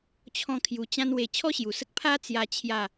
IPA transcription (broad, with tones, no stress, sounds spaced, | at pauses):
t͡ɕʰ ɔ̃˦ kʰ j u˧ t͡ɕ ã˦ n w e˧ t͡ɕʰ ɔ˦ ɕ j u˨˩ s ə˦ k̚ pʰ a˦ t͡s j a˦ t͡ɕʰ j a˥˧